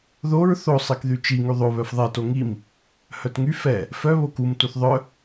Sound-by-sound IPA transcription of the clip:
ðoɹ θo sˤekðyt͡ʃi ŋyðˤo βœfðˤɛ toŋim | hœtŋy fɛ | fœ βokum tuθðˤœ

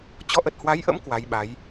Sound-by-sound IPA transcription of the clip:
t͡ɕɔ˨˦ʔə˨˩t̚hwa˨˦jʔə̰˧˥m kwa˨˦jɓa˨˦j

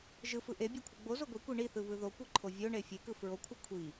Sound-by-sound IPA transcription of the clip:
ʒɯfɯ ʔebʲekʷʰɯ ɡ͡bozo ɡʷikʷi ɳiθɯβɯ ðokʷiǃʰo vʲoɳe fʲekɯ fɹokʷʰɯ kʷʰi

